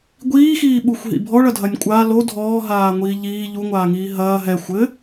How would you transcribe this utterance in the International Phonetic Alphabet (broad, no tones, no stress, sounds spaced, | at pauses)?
ɡʷ iː x iː ɓ u xʷ ɦ ḭ bʱ ɔ ɭ ɐ dʱ ɐ nʲ kʷʼ a l o dʱ ɔː ɦ aː ŋʷ iː ʎ iː ʎ u ŋʷ aː ŋ iː ɦ ɐː ɦ ɛ xʷ ɘ